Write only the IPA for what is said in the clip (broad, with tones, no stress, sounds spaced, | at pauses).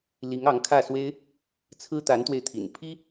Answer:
l i˧˥ ŋ ɑ˧˥ ŋ kʰ ä˥˩ s w e˥ ɪ̯ | t͡sʰ ɹ̩˥ t̪ a˧˥ n t̪ w e˧ ɪ̯ t̪ʰ ḭ˨˩ n pʰ i˥